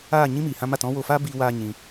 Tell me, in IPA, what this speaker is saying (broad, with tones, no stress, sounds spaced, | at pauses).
aː˦˨ ɲ ĩ˦ m iː˨ h ã˦ m a˦˨ t ɔ̃˦ w o˧ f aː˦ b iː˦ w aː˦ ɲ ĩ˧